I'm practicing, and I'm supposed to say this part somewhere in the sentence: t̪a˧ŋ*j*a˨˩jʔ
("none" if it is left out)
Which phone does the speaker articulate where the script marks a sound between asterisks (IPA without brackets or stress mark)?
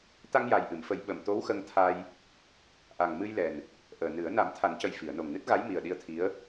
j